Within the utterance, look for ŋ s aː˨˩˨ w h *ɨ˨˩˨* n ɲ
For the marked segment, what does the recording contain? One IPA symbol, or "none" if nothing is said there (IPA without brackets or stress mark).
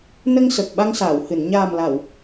ɨ˨˩˨